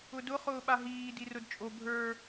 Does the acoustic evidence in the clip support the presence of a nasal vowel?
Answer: no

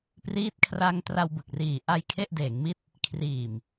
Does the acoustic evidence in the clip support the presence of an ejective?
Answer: no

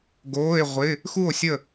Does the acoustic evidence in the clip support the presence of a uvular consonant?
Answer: yes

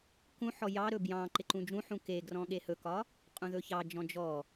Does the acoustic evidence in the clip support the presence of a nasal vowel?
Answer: yes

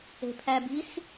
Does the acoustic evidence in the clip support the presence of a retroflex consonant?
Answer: no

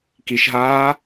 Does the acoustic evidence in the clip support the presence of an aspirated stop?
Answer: no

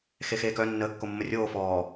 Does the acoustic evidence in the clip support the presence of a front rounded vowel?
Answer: yes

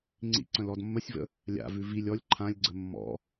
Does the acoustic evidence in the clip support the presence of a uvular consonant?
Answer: no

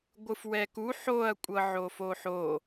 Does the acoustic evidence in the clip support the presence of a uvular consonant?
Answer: no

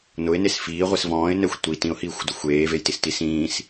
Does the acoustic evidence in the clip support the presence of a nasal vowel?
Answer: yes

